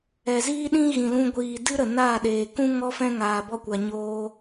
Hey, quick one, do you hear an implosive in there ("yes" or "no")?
yes